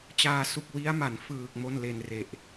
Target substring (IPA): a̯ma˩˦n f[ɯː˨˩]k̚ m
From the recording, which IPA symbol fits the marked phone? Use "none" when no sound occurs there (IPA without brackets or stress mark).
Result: ɯː˨˩